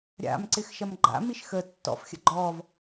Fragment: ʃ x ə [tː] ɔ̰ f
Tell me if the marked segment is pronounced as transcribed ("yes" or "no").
yes